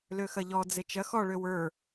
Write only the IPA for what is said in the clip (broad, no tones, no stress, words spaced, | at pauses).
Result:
løxɐʎɔ d͡zet͡ʃɐ xɔ ɭøwə˞